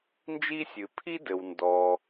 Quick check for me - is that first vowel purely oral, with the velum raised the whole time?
yes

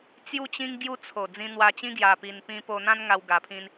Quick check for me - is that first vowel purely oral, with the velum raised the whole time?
yes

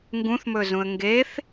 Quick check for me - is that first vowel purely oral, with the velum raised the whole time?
no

